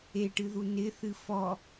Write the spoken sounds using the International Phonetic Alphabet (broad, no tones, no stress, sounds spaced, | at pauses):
e ʈ ɨ ð u n ɪ θ ɨ f ɔ